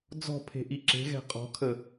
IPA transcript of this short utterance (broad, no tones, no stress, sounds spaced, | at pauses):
d͡z ɔ̤ pʰ e̤ ʔ i ǁ e̤ ɣ ɛ̤ qʼ ɔ̤ kʰ ə